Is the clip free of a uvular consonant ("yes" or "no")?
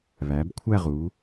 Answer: no